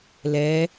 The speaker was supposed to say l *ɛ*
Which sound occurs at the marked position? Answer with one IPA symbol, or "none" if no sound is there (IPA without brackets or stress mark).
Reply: ɛ